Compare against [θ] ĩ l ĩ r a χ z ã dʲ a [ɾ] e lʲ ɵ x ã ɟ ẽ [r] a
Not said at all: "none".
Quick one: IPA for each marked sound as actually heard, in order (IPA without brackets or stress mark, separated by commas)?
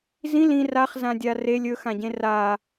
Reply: z, r, r